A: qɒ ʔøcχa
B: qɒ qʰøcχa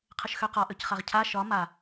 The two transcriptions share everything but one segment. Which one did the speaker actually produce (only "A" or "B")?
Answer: A